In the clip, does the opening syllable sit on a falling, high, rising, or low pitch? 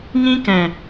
high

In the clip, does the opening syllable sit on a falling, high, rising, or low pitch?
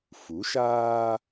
rising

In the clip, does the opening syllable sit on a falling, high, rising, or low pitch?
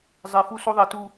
low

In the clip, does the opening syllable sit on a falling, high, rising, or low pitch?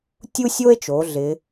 high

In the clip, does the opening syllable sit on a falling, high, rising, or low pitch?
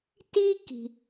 high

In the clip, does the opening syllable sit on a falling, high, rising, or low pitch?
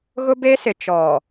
high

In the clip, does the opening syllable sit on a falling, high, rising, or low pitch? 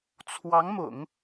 rising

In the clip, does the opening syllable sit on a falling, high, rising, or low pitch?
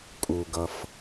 low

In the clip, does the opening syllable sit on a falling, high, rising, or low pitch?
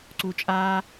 low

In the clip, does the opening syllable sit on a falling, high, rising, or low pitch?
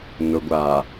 low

